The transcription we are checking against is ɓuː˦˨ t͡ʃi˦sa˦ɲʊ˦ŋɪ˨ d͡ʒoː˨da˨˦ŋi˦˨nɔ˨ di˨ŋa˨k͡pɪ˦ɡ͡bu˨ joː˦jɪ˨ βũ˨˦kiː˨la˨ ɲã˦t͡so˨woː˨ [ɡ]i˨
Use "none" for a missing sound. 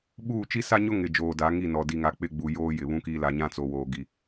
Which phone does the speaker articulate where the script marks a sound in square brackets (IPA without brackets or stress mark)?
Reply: ɡ